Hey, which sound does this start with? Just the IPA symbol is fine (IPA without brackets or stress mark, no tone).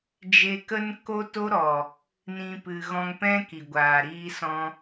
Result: d͡ʒ